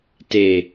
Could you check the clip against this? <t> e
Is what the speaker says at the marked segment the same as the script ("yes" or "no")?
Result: yes